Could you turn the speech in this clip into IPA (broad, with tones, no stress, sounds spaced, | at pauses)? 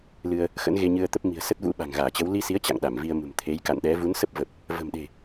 l ɨ˧ ə̯ | x ə̰˧˥ n ɣ e˧ ɲ ɨ˧ ə̯ t̪ ə˦˥ p̚ m i̤˨˩ ə̯ s ə˦˥ t̚ v ṵ˧˥ ɓ a̤˨˩ ŋ ɣ aː˧˩ t͡ɕ ə˨˦ w l i˧ s i˨˦ ə̯ t͡ɕ a̰˧˨ ŋ ɗ a˧˩ m v i˧ ə̯ m ṳ˨˩ m t̪ʰ e˨˦ j k a̰˧˨ n ɗ ɛ˨˦ v u˨˦ n s ə˦˥ p̚ v ə˨˩ p̚ | v ə̤˨˩ m ɗ e̤˨˩